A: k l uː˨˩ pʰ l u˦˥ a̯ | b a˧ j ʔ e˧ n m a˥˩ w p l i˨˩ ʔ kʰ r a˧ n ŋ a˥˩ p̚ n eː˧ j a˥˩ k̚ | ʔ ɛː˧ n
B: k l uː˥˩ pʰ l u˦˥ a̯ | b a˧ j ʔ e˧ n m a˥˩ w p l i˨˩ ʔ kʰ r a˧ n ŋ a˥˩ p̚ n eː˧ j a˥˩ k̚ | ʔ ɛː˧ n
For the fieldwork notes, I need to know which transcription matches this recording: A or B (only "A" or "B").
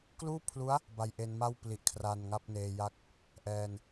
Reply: B